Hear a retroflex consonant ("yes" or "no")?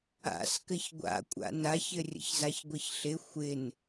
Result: no